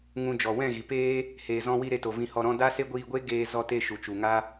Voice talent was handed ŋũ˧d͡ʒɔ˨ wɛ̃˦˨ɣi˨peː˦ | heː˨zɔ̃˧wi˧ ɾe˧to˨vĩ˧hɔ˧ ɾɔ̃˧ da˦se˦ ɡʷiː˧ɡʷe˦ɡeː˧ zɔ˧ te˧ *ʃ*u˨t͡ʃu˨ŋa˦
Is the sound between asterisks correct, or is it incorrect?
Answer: correct